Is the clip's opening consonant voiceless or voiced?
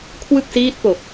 voiceless